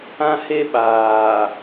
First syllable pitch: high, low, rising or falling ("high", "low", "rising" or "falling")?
high